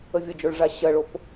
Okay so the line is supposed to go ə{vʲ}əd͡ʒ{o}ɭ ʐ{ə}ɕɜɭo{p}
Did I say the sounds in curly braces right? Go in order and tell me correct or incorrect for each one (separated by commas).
correct, correct, incorrect, correct